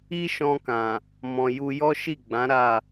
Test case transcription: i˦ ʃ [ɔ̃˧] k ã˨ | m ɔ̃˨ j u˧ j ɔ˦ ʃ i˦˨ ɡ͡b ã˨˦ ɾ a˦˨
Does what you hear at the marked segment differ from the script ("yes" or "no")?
no